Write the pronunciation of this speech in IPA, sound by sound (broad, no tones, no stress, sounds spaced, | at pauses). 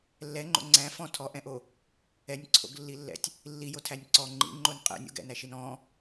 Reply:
lː ɛ ŋ͡ǃ o̰ ŋ͡ǀ æ̃ f ɔ̃ tʰ ɔ ʔ ɛ̃ ʔ o | ɛ nʲ ǀʰ o̰ ɡ lː i lː ɛ̰ tʲ | lː i j o tʰ æ nʲ ǀ ɔ ŋ͡ǃ ḭ ŋ͡ǃ o n qʼ ɛ̰ nʲ o̰ ɡ ɛ̰ n æ ʃ i n ɔ̃